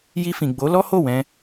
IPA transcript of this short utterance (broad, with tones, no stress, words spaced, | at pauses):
ji˧fĩ˨ɡ͡bo˨˦ lɔ˦ho˦˨wɛ̃˧